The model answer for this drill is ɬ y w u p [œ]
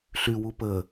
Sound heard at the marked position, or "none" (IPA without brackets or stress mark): ə